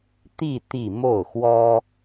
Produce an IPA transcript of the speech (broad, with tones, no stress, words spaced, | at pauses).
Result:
t̪i˥˧ t̪i˥˧ mo˥˩ʊ̯xwɔ˥